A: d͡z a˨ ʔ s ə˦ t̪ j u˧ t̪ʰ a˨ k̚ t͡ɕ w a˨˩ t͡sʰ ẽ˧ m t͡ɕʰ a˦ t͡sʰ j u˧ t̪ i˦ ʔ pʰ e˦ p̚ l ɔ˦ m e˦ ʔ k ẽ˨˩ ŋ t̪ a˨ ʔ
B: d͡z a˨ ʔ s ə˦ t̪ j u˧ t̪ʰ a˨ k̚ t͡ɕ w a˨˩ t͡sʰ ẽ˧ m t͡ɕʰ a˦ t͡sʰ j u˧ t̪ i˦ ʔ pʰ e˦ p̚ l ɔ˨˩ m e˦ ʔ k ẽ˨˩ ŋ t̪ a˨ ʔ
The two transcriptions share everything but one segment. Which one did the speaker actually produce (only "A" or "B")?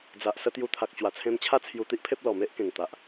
B